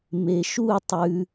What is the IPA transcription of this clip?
m e ʃ u tˤ ʉ

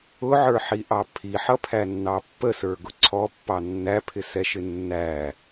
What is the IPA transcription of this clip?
ʊ ʕ ə˞ ħ i ʔ ɑ pʰ i ħ ʌ pʰ æ nː ɑ pː ə s ə˞ ɡ ʊ ǀʰ ɔ pː ɑ nː æ pʰ ɪ s ɛ ʃ ɪ nː æ

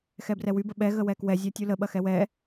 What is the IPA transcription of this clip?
x ɛ b r ɛ w y b ə ɓ ɛ ɣ ə w ɛ k w ɛ zʲ ɜ tʲ u l ə ɓ ɐ x ɛ w ɛ

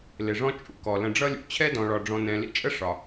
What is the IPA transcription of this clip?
l ɪ˩ ʐ ɔ̃˥ t͡ʃʼ ṵ˨ k ɔ˩ l ə̃˨ ɖ͡ʐ ʌ˥ lʲ ṵ˩ t͡ɕʰ ɛ˥ d ɔ̃˨ ɭ ɒ˨ ɖ͡ʐ ɔ̃˨ n ɛ̃˨ l ḭ˥ t͡ʃʼ ə˥ ʂ ɒ˩

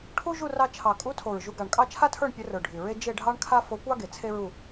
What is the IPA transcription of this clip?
ʈʰ u˥ ʒ u˥˧ r ɑ˧ t͡ʃʰ ɑ˨˩ kʼ u˧˥ tʰ o˨˩ ɹ ʒ u˧ ɡ ɑ˨˩ ɳ kʼ ɑ˥˧ t͡ʃʰ a˥ tʰ ə˞˥˧ ɳ pʲ ə˧˥ r ə˞˨˩ ɖʱ y˨˩ ɹ e˥ d͡ʒ e˥˧ ɖʱ ɑ˥ ɳ kʰ a˥ f o˧˥ kʷ ɑ˥ ɡ e˨˩ t͡sʰ e˥ ɹ u˥˧

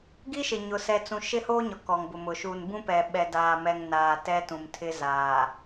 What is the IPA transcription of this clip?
ɡ i˦ ʃ ɪ˨ ɲ ʊ˦ s ɛ˦ t͡s ũ˦ ʃ ɪ˦ h oː˦ ɲ ɔ˨ k ɔ˨ ŋ b ʊ˨ m ʊ˨ ʃ u˨ n b ũ˦ p ɛ˨ ɓ ɛ˨ d aː˨ m ɛ˨ ŋ n aː˨ t ɛ˦ t ũ˨ m tʰ ɪ˦ z aː˨

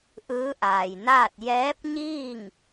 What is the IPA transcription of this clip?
ʔ ɯː˧˥ ʔ aː˩ j n aː˥˨ t̚ j ɛː˧˥ p̚ ɲ iː˥˨ ŋ

